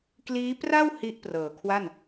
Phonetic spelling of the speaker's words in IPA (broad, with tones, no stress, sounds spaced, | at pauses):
k l iː˦˥ p r a˥˩ w h i˦˥ ʔ p r ɤː˨˩ kʰ w a˥˩ n